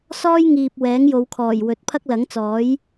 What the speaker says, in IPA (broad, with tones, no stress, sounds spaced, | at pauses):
s ɔː˥ j ŋ iː˨ p̚ w ɛː˨˥ ŋ j o˨˧ w kʰ ɔː˨˩ j w ɵ˨˥ t̚ pʰ ɐ˥ k̚ l ɐ˨˥ ŋ t͡s ɔː˨˥ j